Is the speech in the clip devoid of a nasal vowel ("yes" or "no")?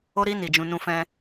no